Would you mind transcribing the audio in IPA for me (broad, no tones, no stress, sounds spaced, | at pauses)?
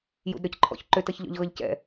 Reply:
j ṵ d ɾ ə˞ c ǃʰ ɔ̰ ç ǃ ʏ t ʌ ç ʎ ɔ̰ ʎ ɣ ʌ ʎ c ɛ̰